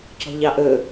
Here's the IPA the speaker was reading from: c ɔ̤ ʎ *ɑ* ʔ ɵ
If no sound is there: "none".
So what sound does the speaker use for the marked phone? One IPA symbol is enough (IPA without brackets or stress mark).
ɑ